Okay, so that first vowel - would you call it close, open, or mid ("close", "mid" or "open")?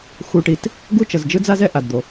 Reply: close